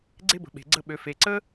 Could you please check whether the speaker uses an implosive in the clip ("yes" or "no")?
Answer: yes